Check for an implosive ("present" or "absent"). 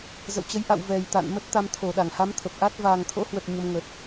present